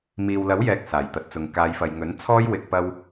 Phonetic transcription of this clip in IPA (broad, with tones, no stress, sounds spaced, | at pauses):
m iː˨ w l ɐ˨˥ w j ɛː˨ k̚ s aː˨˩ j t̪ ɐ˨ t̚ t͡s ʊ˨ ŋ k aː˨˧ j f ɐ˨ j ŋ ɵ˨˥ n t͡sʰ ɔː˥ j w ɪ˧ k̚ p ɐ˥ w